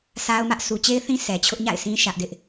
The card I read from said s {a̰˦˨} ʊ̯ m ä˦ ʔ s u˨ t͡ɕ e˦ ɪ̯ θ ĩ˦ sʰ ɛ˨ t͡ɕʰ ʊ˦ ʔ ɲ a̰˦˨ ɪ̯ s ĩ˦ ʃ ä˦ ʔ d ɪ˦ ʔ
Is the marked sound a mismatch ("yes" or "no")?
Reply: yes